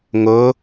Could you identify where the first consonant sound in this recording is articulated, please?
velar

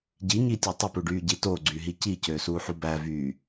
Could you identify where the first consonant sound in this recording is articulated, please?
palatal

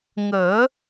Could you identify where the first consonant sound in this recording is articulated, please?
velar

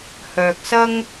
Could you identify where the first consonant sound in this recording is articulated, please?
glottal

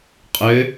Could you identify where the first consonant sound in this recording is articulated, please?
uvular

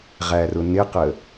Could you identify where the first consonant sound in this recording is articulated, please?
uvular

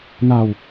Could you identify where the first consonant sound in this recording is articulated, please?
alveolar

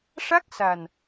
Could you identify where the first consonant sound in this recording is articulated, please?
retroflex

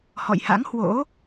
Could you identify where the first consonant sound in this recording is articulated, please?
glottal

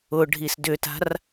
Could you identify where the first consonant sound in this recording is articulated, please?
retroflex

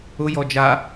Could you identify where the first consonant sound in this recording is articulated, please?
palatal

